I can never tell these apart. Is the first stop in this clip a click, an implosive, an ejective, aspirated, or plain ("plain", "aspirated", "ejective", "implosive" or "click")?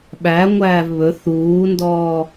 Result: implosive